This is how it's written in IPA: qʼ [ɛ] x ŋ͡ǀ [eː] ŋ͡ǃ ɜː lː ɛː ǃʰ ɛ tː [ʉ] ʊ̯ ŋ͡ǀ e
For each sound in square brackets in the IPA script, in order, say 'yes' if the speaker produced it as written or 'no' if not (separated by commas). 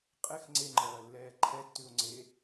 yes, no, yes